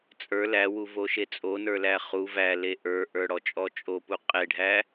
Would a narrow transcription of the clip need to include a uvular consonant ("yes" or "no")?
yes